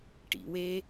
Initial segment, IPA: ʈ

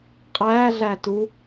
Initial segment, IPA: qʼ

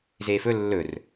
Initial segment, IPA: z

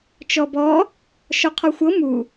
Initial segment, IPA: t͡ʃ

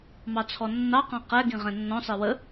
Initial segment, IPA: m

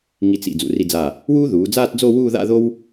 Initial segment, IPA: ŋ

